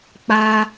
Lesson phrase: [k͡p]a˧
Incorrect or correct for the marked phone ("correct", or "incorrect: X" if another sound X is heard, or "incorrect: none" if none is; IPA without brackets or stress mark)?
correct